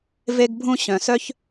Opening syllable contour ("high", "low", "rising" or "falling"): high